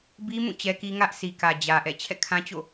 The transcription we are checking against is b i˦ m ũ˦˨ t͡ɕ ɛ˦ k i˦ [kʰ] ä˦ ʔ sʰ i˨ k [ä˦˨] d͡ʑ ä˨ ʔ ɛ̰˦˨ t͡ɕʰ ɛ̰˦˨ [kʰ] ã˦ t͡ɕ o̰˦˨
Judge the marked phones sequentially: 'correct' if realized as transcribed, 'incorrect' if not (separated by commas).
incorrect, incorrect, correct